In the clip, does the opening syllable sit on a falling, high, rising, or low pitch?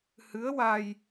rising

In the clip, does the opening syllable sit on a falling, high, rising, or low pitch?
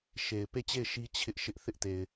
low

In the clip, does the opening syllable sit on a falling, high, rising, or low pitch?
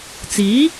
rising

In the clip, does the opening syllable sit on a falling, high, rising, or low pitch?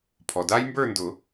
low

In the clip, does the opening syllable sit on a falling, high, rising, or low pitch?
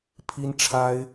high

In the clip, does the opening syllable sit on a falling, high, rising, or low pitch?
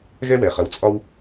high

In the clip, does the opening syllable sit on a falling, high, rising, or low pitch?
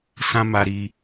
high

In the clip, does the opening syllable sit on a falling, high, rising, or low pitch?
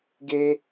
high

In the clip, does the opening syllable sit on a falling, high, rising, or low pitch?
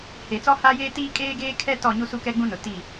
low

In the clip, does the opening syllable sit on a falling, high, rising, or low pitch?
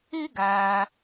high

